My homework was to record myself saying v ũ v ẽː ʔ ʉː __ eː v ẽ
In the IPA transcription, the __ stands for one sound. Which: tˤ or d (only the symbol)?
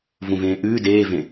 d